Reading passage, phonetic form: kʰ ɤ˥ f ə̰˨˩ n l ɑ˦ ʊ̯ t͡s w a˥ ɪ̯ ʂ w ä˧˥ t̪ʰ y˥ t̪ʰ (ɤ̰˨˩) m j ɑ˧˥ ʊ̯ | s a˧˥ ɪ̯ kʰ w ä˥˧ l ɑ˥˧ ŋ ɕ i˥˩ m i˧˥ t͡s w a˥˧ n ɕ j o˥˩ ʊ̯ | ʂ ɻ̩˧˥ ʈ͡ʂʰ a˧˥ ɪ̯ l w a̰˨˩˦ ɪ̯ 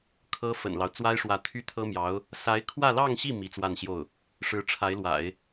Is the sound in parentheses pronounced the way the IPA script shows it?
no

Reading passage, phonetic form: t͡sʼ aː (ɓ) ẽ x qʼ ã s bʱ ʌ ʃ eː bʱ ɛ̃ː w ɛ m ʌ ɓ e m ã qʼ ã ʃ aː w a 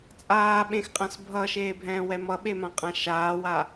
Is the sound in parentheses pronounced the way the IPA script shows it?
yes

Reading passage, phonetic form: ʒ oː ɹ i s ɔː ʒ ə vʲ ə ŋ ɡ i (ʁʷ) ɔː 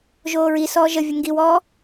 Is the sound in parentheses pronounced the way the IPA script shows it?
no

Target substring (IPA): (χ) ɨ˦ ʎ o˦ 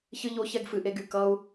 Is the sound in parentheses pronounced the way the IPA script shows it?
no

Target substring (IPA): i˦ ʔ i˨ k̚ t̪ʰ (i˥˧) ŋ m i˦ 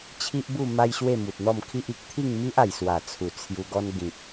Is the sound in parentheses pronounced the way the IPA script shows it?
yes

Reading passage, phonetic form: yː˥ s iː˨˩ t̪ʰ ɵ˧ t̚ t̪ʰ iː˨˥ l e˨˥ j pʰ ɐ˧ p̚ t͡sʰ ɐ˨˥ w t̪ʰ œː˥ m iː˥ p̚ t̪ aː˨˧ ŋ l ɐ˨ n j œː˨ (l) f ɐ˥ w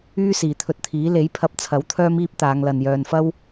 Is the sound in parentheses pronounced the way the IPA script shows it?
no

